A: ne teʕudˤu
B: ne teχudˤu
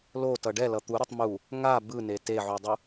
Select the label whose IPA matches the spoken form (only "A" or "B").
A